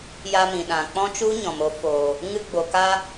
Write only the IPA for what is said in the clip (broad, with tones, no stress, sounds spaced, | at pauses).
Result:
j a˧ m ĩ˨ ɗ ã˨ k͡p ɔ̃˦ t͡ʃ u˦ ɲ ɔ̃˨ m o˧ f o˨ | ŋ ɨ˧ ɡ͡b o˨ k a˧